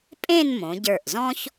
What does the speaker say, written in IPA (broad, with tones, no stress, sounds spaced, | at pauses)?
pʼ ẽ˥˧ n m õ˩˧ ɟ ə˞˧˩ ʔ z ɔ̃˥ ç